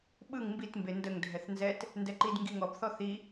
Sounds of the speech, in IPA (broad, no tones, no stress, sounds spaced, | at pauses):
ɓ ɯ ŋ m b i t m b e n d ə ŋ dʱ ɛ θ n z ɛ t | n d ɛ ǃ i d ŋ ɡ i ŋ ɔ b θ ɔ θ i